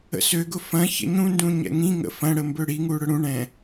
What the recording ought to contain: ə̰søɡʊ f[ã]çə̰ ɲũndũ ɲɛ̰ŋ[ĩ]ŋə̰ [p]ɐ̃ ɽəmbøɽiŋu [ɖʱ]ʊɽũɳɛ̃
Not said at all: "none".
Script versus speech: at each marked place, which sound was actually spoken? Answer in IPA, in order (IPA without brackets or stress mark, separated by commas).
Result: ɐ̃, ĩ, f, ɽ